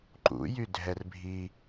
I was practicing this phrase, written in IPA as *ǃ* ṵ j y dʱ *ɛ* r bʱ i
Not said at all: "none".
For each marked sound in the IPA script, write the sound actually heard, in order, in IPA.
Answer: ǃ, ɛ

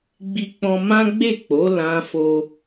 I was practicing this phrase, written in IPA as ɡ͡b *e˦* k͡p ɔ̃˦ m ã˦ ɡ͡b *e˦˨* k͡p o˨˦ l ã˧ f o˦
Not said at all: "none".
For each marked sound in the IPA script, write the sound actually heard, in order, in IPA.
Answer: i˦, e˦˨

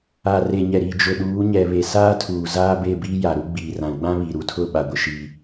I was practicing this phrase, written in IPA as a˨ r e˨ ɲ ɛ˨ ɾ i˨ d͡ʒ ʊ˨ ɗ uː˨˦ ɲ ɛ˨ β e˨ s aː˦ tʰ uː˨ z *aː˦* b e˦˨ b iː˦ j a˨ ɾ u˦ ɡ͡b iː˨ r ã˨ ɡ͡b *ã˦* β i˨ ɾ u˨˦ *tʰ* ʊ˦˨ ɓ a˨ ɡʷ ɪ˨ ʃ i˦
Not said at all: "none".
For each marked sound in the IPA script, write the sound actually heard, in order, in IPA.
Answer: aː˦, ã˦, tʰ

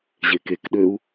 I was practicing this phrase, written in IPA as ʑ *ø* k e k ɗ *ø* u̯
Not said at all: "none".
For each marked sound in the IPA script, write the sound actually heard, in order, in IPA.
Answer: e, ø

